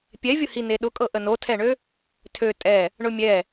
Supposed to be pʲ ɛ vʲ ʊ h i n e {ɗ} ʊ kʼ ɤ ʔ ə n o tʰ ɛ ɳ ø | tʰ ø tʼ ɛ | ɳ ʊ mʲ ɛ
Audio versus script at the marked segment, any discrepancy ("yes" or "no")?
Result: no